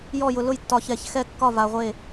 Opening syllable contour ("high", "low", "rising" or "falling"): falling